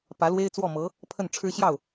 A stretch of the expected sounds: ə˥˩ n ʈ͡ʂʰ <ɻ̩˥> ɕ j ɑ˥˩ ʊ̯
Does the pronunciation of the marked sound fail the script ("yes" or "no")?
no